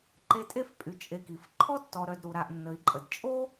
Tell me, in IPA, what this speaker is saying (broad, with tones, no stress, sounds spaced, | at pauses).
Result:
ǃ e˦ tʼ e˥ f pʼ y˨ t͡ʃʼ e˨ k i˩ f ǃʰ ɔ˥ tː ɔ˨ ɾ œ˨ d ɾ u˩ ɾ a˨ ʔ nː ə˩ i̯ ǃʼ ə˩ d t͡ʃʼ o˥